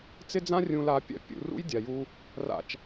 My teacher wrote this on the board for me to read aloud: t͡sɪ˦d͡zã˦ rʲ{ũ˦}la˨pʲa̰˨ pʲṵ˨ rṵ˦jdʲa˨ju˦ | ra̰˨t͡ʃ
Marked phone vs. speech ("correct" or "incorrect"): incorrect